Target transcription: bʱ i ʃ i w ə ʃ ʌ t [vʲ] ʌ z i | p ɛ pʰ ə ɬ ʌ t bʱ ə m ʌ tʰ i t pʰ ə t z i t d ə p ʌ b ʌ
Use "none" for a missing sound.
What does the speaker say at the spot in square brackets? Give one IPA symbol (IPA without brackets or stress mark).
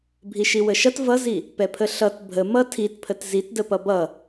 v